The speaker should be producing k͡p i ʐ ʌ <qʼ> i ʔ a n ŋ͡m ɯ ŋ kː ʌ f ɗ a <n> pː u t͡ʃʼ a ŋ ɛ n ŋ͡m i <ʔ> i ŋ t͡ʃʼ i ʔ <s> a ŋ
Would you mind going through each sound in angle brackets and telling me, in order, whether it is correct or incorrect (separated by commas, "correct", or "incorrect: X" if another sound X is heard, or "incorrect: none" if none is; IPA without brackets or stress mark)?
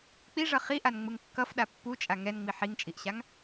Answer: incorrect: χ, incorrect: none, incorrect: ħ, incorrect: ɕ